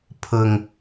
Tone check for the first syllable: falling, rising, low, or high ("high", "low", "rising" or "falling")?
low